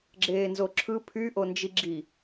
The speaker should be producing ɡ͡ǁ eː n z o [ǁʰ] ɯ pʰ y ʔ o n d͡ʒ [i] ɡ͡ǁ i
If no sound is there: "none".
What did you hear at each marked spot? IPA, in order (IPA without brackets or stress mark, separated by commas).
ǁʰ, i